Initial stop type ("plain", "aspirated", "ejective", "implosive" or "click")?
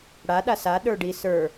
implosive